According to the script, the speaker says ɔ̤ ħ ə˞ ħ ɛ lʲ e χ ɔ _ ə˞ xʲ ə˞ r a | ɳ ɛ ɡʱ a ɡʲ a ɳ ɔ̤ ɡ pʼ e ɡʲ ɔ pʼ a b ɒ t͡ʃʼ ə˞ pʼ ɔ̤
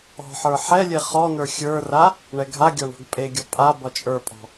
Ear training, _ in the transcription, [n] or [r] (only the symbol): n